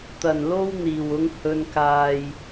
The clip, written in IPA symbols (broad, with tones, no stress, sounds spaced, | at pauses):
t̪ ɐ˨˩ n l o˧ w n̪ iː˨˩ w ʊ˨˧ ŋ h ɵ˨ n k aː˨ j